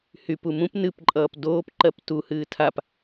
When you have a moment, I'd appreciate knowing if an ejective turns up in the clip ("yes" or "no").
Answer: yes